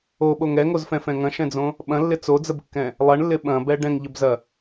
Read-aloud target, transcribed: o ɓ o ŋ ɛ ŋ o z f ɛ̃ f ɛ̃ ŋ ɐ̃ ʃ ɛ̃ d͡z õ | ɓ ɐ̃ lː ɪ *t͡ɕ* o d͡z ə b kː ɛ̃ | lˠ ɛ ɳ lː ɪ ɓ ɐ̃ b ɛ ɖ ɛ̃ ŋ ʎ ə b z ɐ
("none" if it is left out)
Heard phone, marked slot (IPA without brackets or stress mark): t͡s